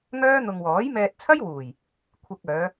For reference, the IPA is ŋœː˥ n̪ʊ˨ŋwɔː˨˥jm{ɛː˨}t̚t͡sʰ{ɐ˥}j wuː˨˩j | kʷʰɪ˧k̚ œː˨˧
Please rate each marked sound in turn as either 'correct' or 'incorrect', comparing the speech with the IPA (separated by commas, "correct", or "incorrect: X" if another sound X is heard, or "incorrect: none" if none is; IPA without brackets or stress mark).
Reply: incorrect: ɛː˧, correct